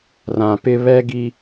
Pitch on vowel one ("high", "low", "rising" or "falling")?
low